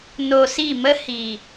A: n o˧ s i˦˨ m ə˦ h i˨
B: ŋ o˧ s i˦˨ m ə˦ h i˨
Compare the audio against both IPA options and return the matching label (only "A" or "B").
A